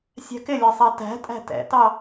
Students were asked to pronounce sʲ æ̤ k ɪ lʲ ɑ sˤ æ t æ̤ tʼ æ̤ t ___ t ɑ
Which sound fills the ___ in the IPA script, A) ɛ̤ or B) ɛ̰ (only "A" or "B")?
B